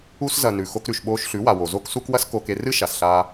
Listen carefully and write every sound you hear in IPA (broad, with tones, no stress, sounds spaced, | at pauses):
u˧ s z ɐ˨ n ʉ˨ x o˧ k ɾ ʉ˨ ʃ ɓ oː˧ ʃ ɬ ʉ˨˦ w a˨ w o˨ z o˦ k s u˦ k w ɐ˦ s k o˧ k e˧ r ɨ˦ ʃ a˨ s ɬ aː˧